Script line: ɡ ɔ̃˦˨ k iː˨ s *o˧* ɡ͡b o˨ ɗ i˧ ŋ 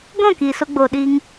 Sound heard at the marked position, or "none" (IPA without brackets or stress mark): o˧